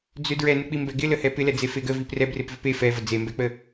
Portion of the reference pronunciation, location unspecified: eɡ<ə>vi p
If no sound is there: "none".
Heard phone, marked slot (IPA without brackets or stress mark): ə